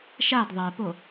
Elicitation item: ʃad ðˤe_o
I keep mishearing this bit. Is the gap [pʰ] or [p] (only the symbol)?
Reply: p